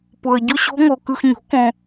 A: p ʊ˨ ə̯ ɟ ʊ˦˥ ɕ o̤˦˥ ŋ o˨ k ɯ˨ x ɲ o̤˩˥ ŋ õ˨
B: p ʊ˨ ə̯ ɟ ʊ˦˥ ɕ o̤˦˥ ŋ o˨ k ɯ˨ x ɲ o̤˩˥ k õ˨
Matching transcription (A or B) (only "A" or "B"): B